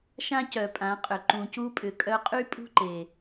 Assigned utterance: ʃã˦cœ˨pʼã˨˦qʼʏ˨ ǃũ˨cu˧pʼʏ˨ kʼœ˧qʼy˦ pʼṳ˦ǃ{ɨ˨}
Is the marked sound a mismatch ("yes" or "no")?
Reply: yes